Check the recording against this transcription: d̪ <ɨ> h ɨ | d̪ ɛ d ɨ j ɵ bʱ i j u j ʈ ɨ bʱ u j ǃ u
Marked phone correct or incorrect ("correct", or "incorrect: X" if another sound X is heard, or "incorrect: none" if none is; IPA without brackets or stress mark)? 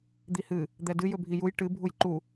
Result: incorrect: i